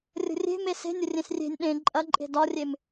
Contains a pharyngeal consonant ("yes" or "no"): no